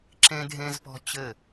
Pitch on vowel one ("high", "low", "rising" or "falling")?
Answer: high